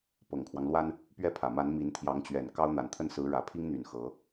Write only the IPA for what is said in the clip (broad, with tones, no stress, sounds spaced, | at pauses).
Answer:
p ɤ˨˩ ŋ kʰ w ɑ˦ ŋ l w a˥ n | p ɥ ɛ˥˩ pʰ ä˨˩ m a˧˥ n m i˧˥ n t̪ʰ j ɑ˧˥ ŋ t͡ɕ ɥ ɛ˨˩ n k ɑ˥ ʊ̯ n̪ a˨˩ n t̪ʰ ə˥˩ n s ɹ̩˧˥ ɻ ä˨˩ pʰ i˥ ŋ n̪ y˨˩ n x ɤ˧˥